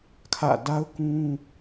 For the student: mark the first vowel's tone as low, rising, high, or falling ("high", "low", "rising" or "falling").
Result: falling